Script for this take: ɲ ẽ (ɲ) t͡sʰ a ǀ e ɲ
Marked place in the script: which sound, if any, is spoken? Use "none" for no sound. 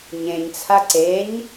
ɲ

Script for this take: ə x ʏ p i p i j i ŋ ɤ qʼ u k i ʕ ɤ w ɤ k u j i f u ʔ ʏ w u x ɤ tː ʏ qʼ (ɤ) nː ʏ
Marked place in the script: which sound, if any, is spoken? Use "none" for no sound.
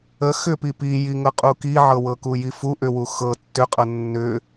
ɤ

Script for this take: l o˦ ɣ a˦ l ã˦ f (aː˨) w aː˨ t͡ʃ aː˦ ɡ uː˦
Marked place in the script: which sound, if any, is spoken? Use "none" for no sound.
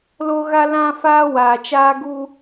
aː˦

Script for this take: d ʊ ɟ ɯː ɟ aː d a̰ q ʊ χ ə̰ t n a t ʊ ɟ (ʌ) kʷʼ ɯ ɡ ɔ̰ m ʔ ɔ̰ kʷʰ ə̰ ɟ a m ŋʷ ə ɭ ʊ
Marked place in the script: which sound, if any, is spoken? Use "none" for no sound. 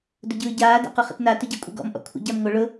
a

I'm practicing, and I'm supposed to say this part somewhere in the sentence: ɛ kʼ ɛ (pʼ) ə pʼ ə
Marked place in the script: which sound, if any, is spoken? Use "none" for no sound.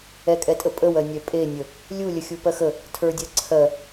tʼ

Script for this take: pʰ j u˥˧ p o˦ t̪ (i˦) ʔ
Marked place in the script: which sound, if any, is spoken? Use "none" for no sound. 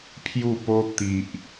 i˨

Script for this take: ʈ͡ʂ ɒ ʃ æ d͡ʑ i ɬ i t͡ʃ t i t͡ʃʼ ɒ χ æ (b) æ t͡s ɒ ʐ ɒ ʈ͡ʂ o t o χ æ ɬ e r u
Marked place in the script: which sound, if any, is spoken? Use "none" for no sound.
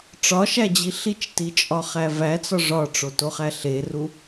v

